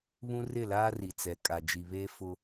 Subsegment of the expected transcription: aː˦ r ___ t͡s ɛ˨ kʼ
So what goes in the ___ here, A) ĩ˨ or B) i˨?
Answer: B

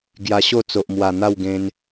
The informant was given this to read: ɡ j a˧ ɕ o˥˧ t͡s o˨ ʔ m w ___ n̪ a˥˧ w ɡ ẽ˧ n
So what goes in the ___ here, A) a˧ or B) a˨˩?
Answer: B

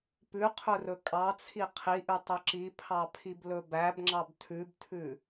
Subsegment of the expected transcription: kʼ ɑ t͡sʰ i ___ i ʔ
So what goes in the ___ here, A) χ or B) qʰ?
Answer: B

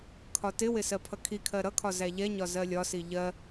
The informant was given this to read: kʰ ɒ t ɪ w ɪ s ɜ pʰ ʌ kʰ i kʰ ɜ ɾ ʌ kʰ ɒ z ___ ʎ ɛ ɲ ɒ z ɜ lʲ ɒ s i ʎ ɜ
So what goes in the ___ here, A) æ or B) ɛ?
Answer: A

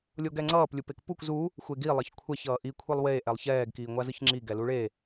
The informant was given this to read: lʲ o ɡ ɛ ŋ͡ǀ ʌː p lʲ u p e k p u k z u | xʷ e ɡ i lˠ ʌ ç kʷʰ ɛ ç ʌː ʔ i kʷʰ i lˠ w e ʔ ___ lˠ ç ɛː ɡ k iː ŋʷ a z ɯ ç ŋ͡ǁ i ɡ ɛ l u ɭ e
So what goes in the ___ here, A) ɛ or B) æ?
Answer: A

